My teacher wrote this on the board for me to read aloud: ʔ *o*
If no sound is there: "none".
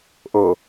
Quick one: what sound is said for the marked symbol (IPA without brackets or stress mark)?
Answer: ɤ